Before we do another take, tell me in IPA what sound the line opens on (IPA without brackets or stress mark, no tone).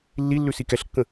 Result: lː